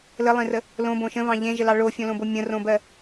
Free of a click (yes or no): yes